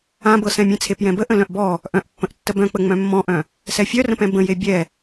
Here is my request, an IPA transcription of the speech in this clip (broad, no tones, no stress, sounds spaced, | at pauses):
ã b ɤ s ɛ̃ mʲ ẽ t͡sʰ e p j ɛ̃ b ə ʔ ə̃ l œ̃ ʔ b ɔ | ʔ œ̃ ʔ pː ə̃ ʔ tː ə b œ̃ k͡p ə ŋ͡m œ̃ mː ɔ̃ ʔ œ̃ | s ɛ fʲ œ r ə̃ p ɛ̃ b ə̃ j e bʲ ɛ